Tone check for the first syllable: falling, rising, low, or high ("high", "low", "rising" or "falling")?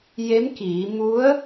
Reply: rising